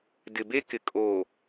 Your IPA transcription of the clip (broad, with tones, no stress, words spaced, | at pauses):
dɪ˨be˦kɪ˨ kʼoː˨